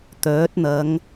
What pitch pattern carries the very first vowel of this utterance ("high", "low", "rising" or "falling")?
rising